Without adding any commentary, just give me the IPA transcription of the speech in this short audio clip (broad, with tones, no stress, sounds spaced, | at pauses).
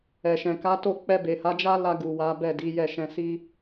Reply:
ɛ˨ ʃ ɛ̃˨ k a˨˦ t o˦˨ k͡p ɛ˧ b e˨ h a˨˦ d͡ʒ a˦ l a˧ ɡ u˨ w a˨˦ b ɛ˦˨ d i˨˦ j ɛ˦˨ ʃ ɛ̃˧ s i˦